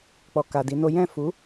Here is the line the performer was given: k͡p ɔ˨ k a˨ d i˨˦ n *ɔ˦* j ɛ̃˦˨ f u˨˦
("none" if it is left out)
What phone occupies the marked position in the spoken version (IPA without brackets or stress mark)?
o˦